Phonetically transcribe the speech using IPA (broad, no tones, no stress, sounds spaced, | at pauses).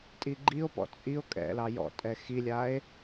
tʼ i ɡ͡ǃ i o̯ p ɔ̰ t͡sʼ i o̯ kʼ ɛ̰ l ɑ j ɔ̰ tʼ ɛ x i lʲ a e̯